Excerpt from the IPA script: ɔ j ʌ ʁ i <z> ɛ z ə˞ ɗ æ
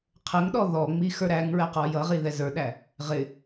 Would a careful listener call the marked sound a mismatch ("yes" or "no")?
yes